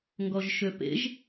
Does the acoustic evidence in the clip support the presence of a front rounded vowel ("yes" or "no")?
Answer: yes